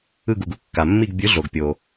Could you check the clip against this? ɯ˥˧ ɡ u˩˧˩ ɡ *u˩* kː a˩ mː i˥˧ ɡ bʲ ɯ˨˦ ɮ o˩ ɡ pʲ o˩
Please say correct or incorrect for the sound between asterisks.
incorrect